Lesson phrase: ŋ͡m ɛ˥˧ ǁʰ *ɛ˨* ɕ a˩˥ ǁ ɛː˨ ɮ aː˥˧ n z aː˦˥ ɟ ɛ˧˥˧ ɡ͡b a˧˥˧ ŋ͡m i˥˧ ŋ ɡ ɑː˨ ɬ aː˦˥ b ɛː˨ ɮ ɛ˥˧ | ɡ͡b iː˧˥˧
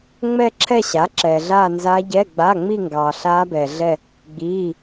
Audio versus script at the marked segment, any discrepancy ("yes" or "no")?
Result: yes